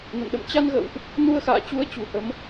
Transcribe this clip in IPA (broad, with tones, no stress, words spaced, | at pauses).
nə̰˧˨nɗə̰˧˨mt͡ɕa˧nɣə̰ː˧˨wʔ | nu˧ə̯xa̰ː˧˨t͡ɕu˨˦ə̯ t͡ɕṳ˨˩hə˨˦m